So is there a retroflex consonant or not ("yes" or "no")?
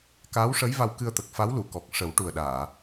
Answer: yes